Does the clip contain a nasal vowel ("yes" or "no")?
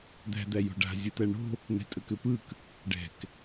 no